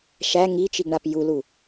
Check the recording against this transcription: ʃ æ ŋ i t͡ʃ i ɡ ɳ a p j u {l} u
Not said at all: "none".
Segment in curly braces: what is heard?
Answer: l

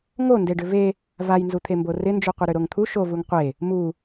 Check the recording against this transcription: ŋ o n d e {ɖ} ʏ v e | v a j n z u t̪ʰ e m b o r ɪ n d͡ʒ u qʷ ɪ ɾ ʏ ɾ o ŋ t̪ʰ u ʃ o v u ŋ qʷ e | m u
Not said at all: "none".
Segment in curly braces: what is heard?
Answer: ɖ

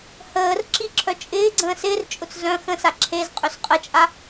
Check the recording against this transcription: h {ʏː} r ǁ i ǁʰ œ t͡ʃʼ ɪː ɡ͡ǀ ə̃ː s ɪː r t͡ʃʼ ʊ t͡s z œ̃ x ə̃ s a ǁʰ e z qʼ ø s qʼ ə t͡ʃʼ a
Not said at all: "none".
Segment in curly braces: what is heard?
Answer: əː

